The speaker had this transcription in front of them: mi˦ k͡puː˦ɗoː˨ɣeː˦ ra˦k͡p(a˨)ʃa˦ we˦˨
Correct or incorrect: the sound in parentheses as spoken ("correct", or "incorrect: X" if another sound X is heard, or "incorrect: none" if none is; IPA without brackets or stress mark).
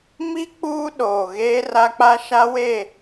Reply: incorrect: a˦